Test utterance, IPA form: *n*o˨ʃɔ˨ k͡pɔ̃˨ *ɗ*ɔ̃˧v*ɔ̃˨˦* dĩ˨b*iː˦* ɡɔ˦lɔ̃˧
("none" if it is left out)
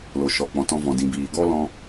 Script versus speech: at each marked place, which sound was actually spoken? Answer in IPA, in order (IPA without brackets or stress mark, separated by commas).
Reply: l, t, ɔ̃˨, iː˨